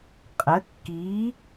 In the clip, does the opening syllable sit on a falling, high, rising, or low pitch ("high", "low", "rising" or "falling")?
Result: rising